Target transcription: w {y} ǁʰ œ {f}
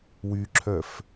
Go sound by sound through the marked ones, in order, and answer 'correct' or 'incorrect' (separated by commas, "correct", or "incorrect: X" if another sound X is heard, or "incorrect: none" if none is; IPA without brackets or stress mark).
correct, correct